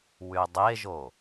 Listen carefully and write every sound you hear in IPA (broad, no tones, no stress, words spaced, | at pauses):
wydˤeʒo